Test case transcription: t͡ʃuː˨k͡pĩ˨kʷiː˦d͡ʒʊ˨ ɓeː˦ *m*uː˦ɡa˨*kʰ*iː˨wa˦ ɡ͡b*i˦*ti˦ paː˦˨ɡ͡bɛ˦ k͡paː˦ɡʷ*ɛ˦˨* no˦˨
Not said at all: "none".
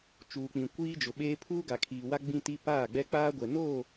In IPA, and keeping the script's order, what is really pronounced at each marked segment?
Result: pʰ, kʰ, ĩ˦, ɛ˨

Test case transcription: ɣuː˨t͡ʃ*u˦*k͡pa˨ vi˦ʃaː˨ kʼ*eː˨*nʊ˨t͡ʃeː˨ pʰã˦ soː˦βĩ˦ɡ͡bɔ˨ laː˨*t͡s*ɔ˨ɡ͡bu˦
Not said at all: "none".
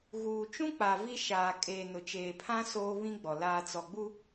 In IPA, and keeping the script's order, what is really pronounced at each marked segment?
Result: ũ˦, eː˨, t͡s

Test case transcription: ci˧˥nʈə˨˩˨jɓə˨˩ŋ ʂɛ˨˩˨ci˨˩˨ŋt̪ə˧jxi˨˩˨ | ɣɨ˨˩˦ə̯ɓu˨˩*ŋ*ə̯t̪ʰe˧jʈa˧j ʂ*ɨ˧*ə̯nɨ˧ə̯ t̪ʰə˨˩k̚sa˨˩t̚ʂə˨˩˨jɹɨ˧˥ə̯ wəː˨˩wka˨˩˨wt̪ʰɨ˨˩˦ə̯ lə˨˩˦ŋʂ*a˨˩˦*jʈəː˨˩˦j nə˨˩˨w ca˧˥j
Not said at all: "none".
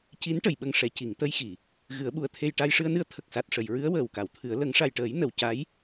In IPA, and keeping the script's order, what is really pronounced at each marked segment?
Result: none, ɨ˧, a˨˩

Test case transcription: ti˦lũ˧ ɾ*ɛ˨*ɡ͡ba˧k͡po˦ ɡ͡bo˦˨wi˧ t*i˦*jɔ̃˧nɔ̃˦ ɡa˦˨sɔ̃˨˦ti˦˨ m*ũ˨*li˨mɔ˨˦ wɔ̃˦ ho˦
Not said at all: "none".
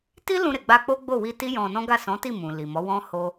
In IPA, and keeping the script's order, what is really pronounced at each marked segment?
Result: e˨, i˦, ũ˨

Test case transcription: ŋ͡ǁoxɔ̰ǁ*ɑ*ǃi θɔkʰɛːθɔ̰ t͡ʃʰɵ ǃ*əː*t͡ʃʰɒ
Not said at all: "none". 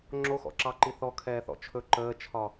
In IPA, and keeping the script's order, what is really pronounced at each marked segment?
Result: ɑ, əː

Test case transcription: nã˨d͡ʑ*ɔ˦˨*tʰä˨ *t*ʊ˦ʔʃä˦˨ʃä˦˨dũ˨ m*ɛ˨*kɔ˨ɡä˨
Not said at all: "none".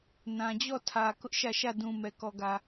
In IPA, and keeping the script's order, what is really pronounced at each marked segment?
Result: ɔ˦˨, k, ɛ˨

